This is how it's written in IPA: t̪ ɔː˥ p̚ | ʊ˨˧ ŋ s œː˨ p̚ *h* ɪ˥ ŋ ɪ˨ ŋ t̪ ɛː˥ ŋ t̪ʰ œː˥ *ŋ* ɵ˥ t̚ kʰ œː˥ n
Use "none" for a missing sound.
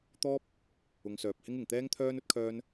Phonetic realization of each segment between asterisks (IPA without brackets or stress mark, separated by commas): h, n